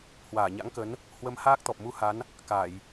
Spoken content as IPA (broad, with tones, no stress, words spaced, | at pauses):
hwaː˧˩ɲa̰˧˥ŋkə˨˦n | hwə˧m haː˦˥k̚t̪ɔ˨˩p̚mu˧ha˨˦n | ka˧˩˨j